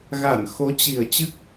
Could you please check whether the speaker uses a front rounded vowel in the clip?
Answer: no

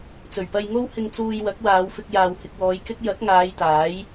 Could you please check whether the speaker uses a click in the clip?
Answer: no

